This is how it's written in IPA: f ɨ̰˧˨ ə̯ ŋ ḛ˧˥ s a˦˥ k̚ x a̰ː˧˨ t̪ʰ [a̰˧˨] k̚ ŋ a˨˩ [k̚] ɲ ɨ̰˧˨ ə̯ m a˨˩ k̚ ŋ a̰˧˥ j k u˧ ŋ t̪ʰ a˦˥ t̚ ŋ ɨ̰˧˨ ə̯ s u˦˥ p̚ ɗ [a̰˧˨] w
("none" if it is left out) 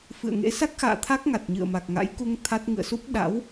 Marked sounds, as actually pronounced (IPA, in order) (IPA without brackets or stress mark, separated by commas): a˦˥, t̚, a̰˧˥